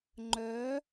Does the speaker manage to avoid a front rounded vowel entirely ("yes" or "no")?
no